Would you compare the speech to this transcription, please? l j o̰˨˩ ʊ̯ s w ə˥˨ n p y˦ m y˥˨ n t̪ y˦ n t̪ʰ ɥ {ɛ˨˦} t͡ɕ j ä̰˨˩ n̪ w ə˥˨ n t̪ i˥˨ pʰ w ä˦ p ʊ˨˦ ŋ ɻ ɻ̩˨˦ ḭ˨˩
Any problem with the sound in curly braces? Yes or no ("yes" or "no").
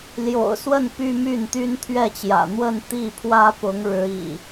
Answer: yes